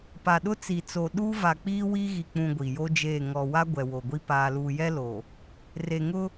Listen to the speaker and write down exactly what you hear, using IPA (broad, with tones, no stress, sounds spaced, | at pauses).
p a˨ ɗ ʊ˦ t͡s i˨ t͡s o˨ ɗ uː˦ v a˨ k͡p iː˦ w i˦ ɣ i˨ k͡p ũ˨ ɡʷ i˨ j o˦ d͡ʒ eː˦˨ ŋ ɔ˨ w a˦ ɡʷ ɛ˨ w o˨ ɡʷ i˦ p aː˨ l uː˨ j ɛ˦ l o˨ | r e˨ ŋ ʊ˦